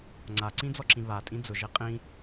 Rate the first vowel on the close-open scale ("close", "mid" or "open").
open